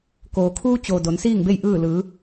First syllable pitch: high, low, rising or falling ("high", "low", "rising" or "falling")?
low